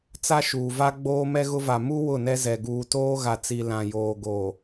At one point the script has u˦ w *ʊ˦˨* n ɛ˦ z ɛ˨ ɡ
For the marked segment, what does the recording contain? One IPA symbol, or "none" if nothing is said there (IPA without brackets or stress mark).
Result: ʊ˦˨